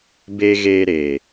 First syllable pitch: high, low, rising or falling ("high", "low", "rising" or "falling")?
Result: low